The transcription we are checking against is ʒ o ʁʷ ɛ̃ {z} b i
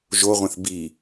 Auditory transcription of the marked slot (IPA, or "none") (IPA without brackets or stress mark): θ